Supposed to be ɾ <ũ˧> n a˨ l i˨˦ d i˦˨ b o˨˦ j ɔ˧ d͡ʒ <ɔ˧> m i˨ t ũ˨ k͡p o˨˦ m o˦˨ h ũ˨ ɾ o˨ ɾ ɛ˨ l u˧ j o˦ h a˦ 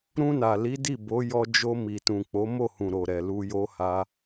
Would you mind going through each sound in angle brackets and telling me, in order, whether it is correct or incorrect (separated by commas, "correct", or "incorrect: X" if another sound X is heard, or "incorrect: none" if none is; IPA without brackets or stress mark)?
correct, incorrect: o˧